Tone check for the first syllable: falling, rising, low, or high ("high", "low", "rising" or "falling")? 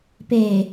low